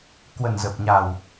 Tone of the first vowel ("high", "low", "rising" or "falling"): low